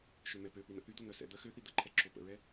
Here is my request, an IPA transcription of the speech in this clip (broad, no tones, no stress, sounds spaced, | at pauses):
ʃ ø m ɛ p ø p i n̪ ə̰ θ y d̪ o n̪ œ s ɛ̰ d̪ ə x ø θ i d̪ ə ǃʰ ɛ ǁ o p ə̰ ɹ ɛ